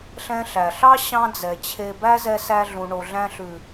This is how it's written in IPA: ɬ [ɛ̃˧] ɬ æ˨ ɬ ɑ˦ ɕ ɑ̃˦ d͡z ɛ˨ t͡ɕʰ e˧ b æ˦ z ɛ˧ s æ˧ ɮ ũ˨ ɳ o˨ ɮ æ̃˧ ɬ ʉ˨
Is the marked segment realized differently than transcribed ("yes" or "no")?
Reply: yes